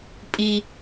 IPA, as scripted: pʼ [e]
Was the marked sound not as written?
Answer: yes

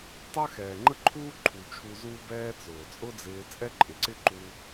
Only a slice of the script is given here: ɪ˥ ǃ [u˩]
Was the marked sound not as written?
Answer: yes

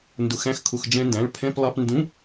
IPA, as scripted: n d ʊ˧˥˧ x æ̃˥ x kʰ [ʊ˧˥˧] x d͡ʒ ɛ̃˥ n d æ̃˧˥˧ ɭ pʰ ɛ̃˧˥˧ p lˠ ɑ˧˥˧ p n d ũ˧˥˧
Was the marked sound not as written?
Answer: no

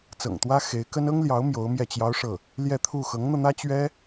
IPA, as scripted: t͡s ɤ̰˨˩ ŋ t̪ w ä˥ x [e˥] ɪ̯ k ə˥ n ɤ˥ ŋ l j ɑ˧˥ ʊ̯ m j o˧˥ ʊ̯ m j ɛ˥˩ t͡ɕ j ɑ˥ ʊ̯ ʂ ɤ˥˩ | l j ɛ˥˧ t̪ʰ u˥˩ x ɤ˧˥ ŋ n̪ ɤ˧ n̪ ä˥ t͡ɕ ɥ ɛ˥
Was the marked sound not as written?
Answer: yes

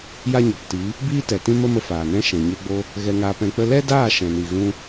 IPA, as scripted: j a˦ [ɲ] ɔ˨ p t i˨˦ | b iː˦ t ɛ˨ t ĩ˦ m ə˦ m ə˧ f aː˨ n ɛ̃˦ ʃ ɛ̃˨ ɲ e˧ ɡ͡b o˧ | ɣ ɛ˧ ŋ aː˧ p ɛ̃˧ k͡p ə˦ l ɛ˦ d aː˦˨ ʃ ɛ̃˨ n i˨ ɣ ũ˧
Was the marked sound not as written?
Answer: no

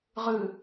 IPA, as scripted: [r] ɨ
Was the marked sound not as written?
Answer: yes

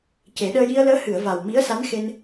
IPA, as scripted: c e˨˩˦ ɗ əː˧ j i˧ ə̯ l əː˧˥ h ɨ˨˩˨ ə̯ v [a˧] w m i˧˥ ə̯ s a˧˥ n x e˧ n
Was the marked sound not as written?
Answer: yes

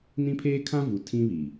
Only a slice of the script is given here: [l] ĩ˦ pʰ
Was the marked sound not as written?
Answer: yes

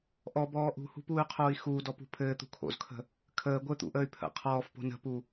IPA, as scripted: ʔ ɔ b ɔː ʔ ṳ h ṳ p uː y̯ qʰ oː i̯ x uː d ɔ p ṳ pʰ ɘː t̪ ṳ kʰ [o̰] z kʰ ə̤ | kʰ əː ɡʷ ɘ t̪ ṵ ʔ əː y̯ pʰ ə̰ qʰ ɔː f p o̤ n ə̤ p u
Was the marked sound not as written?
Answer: no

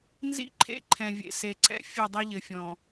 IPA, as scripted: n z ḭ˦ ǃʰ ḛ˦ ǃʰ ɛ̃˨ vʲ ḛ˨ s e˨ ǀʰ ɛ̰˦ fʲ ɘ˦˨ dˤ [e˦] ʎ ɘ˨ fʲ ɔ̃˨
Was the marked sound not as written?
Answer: yes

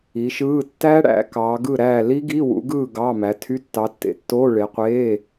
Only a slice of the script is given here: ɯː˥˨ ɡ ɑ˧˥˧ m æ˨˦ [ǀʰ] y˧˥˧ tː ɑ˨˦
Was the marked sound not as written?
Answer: yes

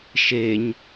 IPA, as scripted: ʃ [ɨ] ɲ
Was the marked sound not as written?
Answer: yes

